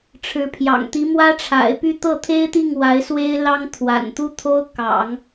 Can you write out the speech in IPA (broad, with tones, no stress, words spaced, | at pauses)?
ʈ͡ʂʰɻ̩˧˥pʰjɑ̰˨˩ŋt̪i˧˥ mwä˥ʈ͡ʂʰa̰˨˩ɪ̯py˥˧ t̪ɤ˥˩t̪ʰe˥ɪ̯t̪i˥˩ŋ wa˧˥ɪ̯swe˥ɪ̯ lɑ˥ŋt̪ʰwa̰˨˩nt̪u˥t̪ʰo˥ʊ̯ kɑ̰˨˩˦ŋ